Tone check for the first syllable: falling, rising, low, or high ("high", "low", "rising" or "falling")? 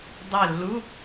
falling